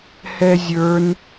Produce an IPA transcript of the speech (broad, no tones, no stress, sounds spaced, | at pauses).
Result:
h ɛ zʲ ə˞ n